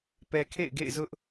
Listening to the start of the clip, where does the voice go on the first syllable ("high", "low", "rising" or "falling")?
low